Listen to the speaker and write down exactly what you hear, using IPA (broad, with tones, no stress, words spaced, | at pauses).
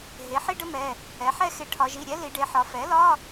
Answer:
ɦe˩˥ ħi˥ɖə˥mɛ˩˧˩ | ɛ˩˥ħɛ˥ xe˩˥ ʈʰɒ˩˧ʒi˩˧˩ɾʲɛ˥ li˩˧ɖe˩˧ħɒ˩˧ fɛ˩˥lɒ˧˥˧